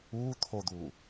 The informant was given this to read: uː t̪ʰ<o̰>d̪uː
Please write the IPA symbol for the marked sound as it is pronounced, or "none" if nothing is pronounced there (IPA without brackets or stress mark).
o